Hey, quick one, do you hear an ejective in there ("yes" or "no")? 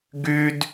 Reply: no